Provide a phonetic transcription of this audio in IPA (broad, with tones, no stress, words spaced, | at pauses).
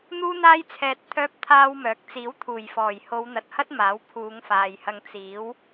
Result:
n̪uː˥n̪aː˥jt͡sʰɛː˧t̚ t̪ʰœː˥p̚t̪ʰaː˥wmœː˨˥k̚ t͡siː˨˥wt̪ʰuː˨˩jfɔː˨˩j ho˨˧wn̪ɐ˨t̚hɐ˥t̚ maː˨˥wpʰuː˨˧ŋfaː˨jhɐ˧ŋ t͡siː˨˥w